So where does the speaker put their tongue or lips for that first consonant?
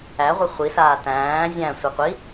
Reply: uvula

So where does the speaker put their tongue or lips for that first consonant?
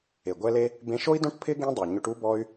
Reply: velum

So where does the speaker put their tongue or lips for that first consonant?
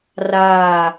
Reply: tongue tip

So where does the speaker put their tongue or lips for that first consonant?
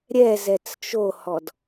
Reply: tongue tip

